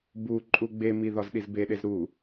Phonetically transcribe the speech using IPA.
b u ǃʼ u ɡ͡b e m i ð ɒ z ɗ i z b e ɗ e z ɾ u

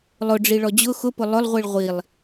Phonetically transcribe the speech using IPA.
lˠ ʊ ɖ͡ʐ i ɭ ɔ d͡ʑ ʊ x ʊ p ʊ lˠ ʊ lˠ ʁʷ i ɭ ʁʷ i lˠ

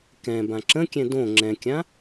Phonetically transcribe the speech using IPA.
k ɛ̃ b ã ǁ ə̃ kʲ ɛ̃ d õ ŋ͡ǁ ɛ̃ kʲ ã

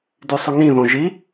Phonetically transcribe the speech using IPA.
d y sˤ ʉ ŋ ĩ ð õ ʒ i

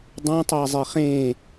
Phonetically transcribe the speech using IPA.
dˤ õ tˤ a zˤ e χ ẽ

